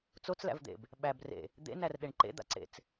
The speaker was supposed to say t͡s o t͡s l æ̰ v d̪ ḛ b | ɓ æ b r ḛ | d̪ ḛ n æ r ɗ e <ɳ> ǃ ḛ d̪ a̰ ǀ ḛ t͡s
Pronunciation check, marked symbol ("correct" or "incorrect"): correct